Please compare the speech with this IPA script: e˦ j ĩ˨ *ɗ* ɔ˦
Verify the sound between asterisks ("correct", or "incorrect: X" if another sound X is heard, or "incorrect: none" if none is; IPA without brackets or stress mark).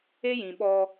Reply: incorrect: ɓ